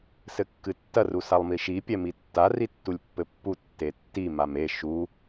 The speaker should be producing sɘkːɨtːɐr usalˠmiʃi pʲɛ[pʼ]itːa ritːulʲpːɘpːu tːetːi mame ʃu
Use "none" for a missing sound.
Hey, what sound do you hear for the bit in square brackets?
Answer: m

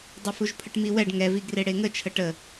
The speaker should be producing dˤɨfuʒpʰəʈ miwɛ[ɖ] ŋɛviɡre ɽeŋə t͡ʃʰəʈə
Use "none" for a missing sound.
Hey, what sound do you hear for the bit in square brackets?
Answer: ɖ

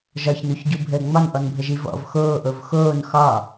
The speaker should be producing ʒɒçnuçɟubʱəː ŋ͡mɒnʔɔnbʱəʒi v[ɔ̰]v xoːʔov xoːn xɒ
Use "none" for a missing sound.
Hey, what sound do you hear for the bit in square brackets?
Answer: ɔ̰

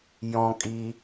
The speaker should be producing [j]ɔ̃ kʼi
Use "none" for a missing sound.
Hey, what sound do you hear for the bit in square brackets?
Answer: j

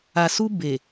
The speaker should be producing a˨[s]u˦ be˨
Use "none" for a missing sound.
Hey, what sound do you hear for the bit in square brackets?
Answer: s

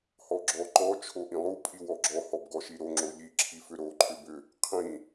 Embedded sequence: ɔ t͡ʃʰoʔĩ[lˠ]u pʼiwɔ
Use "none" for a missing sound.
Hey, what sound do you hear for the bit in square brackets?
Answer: lˠ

